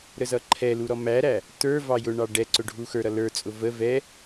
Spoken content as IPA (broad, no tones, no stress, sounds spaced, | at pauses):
ɾ ə z ʌ ǃʰ ɛ l u ɾ ɔ m æ ɾ æ | t ə˞ v ɑ j ʊ ɳ ɑ ɖ ɛ ǀ ʊ ɖʱ u x ə˞ ɾ ʌ l ə˞ t͡sʼ ʊ v ə v ɛ